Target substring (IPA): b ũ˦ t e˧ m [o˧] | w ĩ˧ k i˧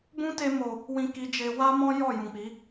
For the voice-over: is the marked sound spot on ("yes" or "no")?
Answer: no